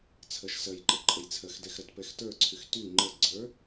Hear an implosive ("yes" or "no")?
no